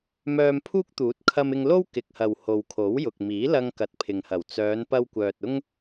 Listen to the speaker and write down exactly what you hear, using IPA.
m œː˧ m pʰ uː˥ k̚ t̪ uː˨˥ t̚ kʰ ɐ˧ m ɪ˧ ŋ l o˥ w k ɪ˨ k̚ h ɐ˨ w h o˨ w kʰ o˨˥ w j ʊ˨ k̚ m iː˨˥ l ɐ˧ ŋ k ɐ˨ t̚ pʰ ɪ˨ ŋ h ɐ˨˩ w t͡s œː˨˧ n p ɐ˧ w kʷ œː˨ t̚ ʊ˥ ŋ

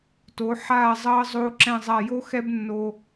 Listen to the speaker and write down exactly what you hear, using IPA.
t o˩˧ ħ aː˧˩ zˤ ʌː˧ zˤ oː˧ ǁ ɛ̃˧˩ zˤ a˧˩ j o˥ x ɛ˥ b nː o˧

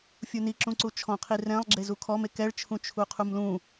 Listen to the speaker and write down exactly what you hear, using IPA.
fʲ u n i ǁ ũ ǀ u t͡ʃʰ ɔ̃ qʰ i r ɛ̃ lˠ ɡ͡ǁ e z u kʰ ɔ m e k ɛ ɭ t͡ʃʰ ũ t͡ʃʰ u qʰ u m l ũ

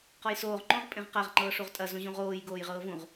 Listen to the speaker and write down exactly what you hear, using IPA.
q ɔ j s oː ʁ ŋ͡ǃ õ ʁ pʼ ẽ ʁ q a ʁ ŋ͡ǃ ɤː ʂ u ʁ tʼ ɐ z ũ ʑ ũ ʁ oː j ɡ oː j ʁ ɤː v ũ ʁ

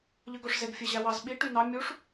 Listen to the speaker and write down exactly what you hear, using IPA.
ʎ ɯ ɡ o ʂ z e ɡ fʲ e ʑ æ w ɑ z ɓ i ʈ y n ɑ mʲ u ʂ

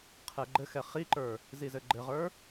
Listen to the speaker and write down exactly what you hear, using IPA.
qʰ ɛ ɡ͡ǃ ɘ x ɛ χ i ǃ ə˞ | z i z ɘ ɡ͡ǃ ɘ ʁ ə˞

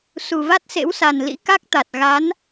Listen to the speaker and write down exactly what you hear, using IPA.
s u˨˩ v a˦˥ t̚ s ḛ˧˥ w s a˨˩ n l ḭ˧˥ k a˦˥ k̚ t̪ a˨˩ t̚ ɣ a˨˦ n

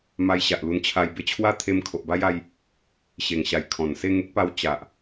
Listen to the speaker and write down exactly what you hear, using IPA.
m a˧ j ɕ a˨ ʔ l u˧ n t͡ɕʰ a˧ j b e˧ t͡ɕʰ w a˦ t̪ʰ e˧ m kʰ o˨ ʔ b a˦ j a˧ j | ɕ e˨˩ ŋ ɕ a˨˩ j kʰ ɔ̃˨˩ n s e˥˧ ŋ e˦ k̚ p a˧ w t͡ɕ a˨ ʔ

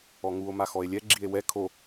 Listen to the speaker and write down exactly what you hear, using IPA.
ɔ ŋ u o̯ m a x ɔ e̯ lʲ ɛ ɡ͡ǁ i e̯ w ɛ kʰ o

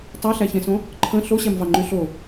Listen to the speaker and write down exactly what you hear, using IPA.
tˤ æ ɬ æ ç ẽ s õ | ǃʰ ə̃ ɬ o ɕ æ m v ɑ ŋ͡ǃ y ɬ o

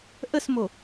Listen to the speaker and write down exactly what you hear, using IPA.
ʔ ə s m o

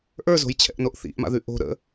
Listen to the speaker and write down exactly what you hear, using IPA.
ʔ ə˞ z o̤ j t͡ɕʰ ɛ̰ ʔ n o ʔ θ ḭ ʔ m a̰ ð ʉ ʔ o̤ ɾ ə̰

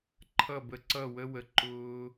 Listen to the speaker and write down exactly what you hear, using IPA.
ǃʰ ʌ˦˨ b ə˧ ǀ ʌ˦˨ w ə˦ w ə˨ ǃ ʊː˧

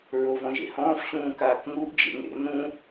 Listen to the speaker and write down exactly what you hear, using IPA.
ɹ o v ɔ̃ ʒ ḛ h ɔ̃ː f ɕ ũː k aː k ŋ u ʔ d͡ʒ ḛ ŋ ḛ n ũ

